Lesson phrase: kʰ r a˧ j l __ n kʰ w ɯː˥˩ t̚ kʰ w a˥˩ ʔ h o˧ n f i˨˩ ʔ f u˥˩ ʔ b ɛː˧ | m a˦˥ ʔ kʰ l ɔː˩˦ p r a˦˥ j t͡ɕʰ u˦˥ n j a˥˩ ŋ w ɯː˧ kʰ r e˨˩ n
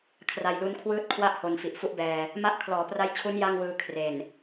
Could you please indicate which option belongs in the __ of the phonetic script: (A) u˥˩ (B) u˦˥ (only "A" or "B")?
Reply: B